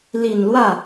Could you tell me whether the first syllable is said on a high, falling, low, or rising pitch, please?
low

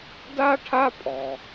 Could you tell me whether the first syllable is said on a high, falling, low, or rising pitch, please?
high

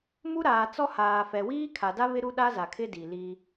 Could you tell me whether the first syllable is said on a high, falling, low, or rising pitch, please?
high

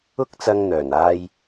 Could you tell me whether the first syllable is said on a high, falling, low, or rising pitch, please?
high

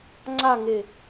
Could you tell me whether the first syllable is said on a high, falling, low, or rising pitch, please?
falling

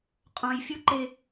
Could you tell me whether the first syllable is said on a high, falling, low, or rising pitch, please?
high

